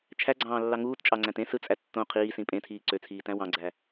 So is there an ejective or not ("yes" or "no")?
yes